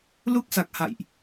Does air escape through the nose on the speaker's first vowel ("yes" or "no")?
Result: no